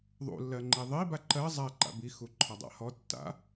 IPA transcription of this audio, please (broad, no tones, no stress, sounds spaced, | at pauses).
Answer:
ðˤ ṵ lː ɜ ŋ͡ǃ i ðˤ i b a ǃ ɜ zˤ a ǃ a̰ b i x u ǃʰ ɒ dˤ a̰ h ɔ tː a̰